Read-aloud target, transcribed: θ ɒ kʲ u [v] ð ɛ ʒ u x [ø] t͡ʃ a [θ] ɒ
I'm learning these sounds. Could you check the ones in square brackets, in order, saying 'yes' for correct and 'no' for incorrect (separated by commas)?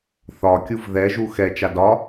yes, no, no